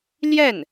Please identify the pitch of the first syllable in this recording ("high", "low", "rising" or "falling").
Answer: falling